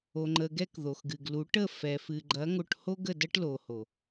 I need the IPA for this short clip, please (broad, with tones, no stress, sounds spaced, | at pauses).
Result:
o˨ ŋ͡ǃ ə˨ ɡ ɛ˧ k ð o˨ x ɡ ɨ˨ ɡ l u˨˦ ʈ ə˦˨ f ɛ˨ f ɨ˨ ɡ͡ǃ ɐ˨˦ ŋ o˧ ʈ h o˦ ɡ ə˦˨ d ɐ˦ ʈ l o˨ h o˨